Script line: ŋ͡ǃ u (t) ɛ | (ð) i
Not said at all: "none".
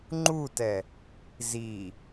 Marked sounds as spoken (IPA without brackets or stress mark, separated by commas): t, z